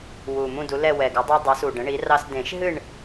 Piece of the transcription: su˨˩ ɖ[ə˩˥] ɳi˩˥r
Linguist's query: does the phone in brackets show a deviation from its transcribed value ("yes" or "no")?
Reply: yes